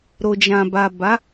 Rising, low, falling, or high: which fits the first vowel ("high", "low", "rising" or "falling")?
low